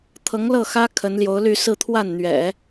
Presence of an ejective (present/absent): absent